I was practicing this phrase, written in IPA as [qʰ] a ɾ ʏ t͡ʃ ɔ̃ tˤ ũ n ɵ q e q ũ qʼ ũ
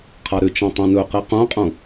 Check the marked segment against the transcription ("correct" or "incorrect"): correct